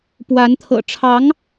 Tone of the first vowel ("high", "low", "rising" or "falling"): rising